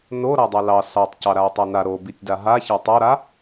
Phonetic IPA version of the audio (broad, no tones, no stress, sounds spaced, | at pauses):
n o ɾ a dˤ a l ɑ s ɑ tˤ c ɑ ɾ a i̯ tˤ a n a ɾ o b i tʲ d a ɦ a ç a tˤ o ɾ a